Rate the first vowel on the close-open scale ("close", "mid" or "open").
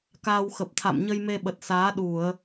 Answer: open